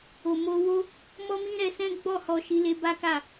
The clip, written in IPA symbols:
o˨ m o˧ w o˦ | m ɔ˦ m ĩ˦ ɾ ɛ˧ s ɛ̃˦ ɡ͡b ɔ˦˨ h ɔ˧ ʃ i˧ l e˧ b a˦ k a˦˨

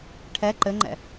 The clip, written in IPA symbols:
ʈʰ ɛ ǃ ɘ ŋ͡ǃ ɛ̰

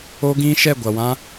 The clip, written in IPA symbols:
o˦ ɡ ĩ˦ ʃ ɛ˦˨ ɡʷ a˨ w ã˦

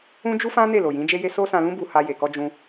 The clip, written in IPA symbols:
ũ˦ d͡ʒ u˦ f ã˦ n e˦˨ l o˨ j ĩ˨˦ d͡ʒ e˦ j e˦ s o˦ s ã˧ l ũ˦ b u˧ h a˧ j e˨ k ɔ˧ d͡ʒ ũ˧

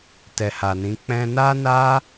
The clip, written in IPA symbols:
t ɛ˨ h a˨ n ĩ˨˦ k͡p ɛ̃˧ n a˦ n a˦

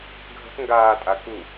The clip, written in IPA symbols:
ɡʱ ə̤ t ŋ ɡ aː tʼ a k u

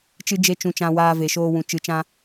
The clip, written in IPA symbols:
t͡ʃ ɨ˦ d͡ʒ e˦ t͡ʃ ũ˧ t͡ʃ ã˧ w aː˧ v e˨ ʃ oː˧ w ũ˨ t͡ʃ ɨ˨ t͡ʃ ã˧

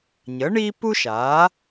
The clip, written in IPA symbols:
ɲ ə˩˥ ɳ i˥ p u˥ ʃ a˩˥

